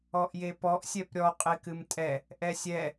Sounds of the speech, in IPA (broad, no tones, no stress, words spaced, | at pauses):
ɔʔjepɔʔ sʲɛpɾʲɔ qʼekɨmtʼɛ | ʔɛsʲɛ